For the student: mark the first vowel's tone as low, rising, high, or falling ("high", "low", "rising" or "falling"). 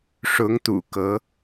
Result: rising